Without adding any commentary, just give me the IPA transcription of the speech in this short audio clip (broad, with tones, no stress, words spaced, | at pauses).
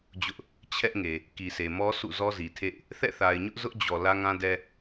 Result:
d͡ʑʊ˦ʔ | t͡ɕʰɛ˦ʔŋe˨ | ki˨sʰe˨mɔ˦ sʰṵ˦˨zɔ˦zi˨tʰḛ˦˨ɪ̯ | θɛ̰˦˨θa˨ɪ̯ɲʊ˦ʔ zʊ˦ʔd͡ʑɔ˨ lä˦ŋã˦dɛ˦